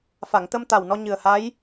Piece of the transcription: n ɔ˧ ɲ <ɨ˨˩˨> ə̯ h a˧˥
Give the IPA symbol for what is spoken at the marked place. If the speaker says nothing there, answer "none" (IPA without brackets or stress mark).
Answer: ɨ˨˩